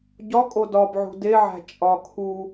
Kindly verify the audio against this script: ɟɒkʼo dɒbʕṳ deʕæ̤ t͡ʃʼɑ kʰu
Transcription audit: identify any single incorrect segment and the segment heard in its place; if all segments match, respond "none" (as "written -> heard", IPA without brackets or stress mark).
ɑ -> ɒ